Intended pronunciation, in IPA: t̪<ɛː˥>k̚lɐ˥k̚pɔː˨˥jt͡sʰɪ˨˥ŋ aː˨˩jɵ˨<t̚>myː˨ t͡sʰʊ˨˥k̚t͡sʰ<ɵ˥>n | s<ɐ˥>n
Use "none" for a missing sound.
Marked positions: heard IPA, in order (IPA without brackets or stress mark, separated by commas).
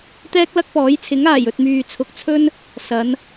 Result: ɛː˥, t̚, ɵ˥, ɐ˨˧